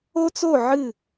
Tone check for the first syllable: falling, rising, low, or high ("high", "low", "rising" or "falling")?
high